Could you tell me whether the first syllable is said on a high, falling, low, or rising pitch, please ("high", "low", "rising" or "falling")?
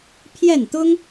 falling